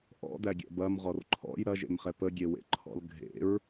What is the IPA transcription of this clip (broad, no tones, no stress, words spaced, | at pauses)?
ʔɔ̰dæɡʲɛ̰ bɐmʁɔr ǃʰɔ̰j ɾɐʒḛmχɛ pəɡʲewḛǃʰɔ̰l ɡʱḛɹ